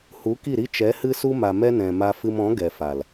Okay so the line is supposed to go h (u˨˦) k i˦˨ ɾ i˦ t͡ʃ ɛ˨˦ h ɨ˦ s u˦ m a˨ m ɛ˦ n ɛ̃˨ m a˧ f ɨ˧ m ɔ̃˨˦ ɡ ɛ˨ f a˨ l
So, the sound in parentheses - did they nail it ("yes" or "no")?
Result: yes